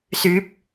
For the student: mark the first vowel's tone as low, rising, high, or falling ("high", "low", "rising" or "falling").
rising